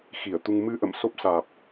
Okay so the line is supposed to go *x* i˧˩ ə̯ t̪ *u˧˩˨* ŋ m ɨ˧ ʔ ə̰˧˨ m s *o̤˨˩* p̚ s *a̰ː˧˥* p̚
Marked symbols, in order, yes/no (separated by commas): yes, no, no, no